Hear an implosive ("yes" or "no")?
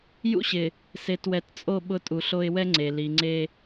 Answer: yes